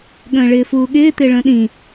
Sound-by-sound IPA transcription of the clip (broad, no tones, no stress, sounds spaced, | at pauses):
ɠ ə̃ː ɭ ɪː f uː ɠ ɪː t̪ ɪː ɭ ə̃ː ɗ ĩ